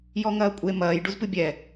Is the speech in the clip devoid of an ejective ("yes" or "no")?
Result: no